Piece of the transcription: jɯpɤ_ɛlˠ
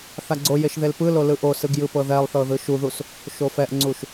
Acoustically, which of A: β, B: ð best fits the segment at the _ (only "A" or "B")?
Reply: B